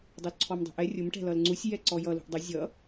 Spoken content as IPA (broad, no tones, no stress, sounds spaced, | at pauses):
dˤ u l ǀʰ ɔ m dˤ ṳ ʔ ɛ rʲ ʊ m ʈ ɛ̤ l ʌ l ŋ͡ǀ u sʲ j ɛ ǀ ɔ j ʌ l ṳ ʔ dˤ ə zʲ ʌ